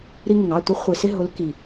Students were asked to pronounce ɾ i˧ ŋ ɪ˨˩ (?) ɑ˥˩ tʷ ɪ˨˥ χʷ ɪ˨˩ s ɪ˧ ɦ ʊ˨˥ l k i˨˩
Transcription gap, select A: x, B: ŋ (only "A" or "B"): B